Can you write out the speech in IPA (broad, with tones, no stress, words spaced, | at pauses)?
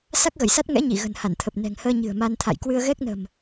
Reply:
sa˦˥k̚ɣə˧˩jsa˦˥t̚ ŋɛ̰˧˥ɲi˧˩ɣə̤˨˩n ha˧˩nt̪ʰə˨˩p̚ nɛ̤˨˩ŋhəː˧ ɲɨ̤˨˩ə̯ma˧nt̪ʰa̰˧˨j kwɨ˧ə̯ɣɛ˦˥k̚nə̤˨˩m